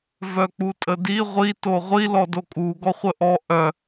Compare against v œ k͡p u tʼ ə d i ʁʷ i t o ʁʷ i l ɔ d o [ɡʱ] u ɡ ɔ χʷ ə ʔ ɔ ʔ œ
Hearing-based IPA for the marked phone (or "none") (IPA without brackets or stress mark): kʼ